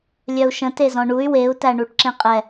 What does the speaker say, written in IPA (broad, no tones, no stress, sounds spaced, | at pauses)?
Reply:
lʲ œ u̯ ʃ ə̃ t e z ɔ̃ ɳ u y̯ w e u̯ t æ ɳ u ʈ ǁ ẽ qʼ ɛ